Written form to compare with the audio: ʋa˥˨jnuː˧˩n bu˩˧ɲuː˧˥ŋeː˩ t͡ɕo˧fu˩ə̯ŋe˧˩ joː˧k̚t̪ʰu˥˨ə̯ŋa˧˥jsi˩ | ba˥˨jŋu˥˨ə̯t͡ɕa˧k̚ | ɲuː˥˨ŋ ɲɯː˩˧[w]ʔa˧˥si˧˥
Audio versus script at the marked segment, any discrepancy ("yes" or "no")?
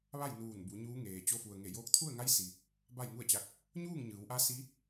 no